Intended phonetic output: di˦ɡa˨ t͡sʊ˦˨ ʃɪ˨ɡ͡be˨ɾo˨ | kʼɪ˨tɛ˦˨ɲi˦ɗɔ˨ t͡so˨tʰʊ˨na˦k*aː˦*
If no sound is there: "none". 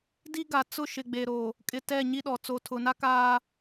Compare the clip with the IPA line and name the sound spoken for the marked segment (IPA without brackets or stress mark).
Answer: aː˦